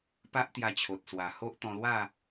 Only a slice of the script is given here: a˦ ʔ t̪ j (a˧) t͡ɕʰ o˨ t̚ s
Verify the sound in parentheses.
correct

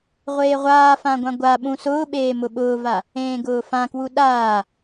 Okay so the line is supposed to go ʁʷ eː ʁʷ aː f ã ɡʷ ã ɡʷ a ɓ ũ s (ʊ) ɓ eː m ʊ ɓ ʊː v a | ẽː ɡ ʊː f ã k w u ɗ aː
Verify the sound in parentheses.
incorrect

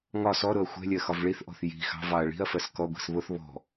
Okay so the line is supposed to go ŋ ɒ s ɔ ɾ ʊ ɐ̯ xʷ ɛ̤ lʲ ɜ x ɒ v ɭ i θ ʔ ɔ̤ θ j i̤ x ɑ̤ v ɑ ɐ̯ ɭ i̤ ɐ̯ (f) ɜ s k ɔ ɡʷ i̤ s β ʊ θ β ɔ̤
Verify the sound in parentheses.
correct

